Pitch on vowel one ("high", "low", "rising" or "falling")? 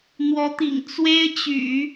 rising